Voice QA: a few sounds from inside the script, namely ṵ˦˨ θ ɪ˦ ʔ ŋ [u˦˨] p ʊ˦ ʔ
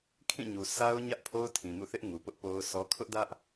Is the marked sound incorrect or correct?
incorrect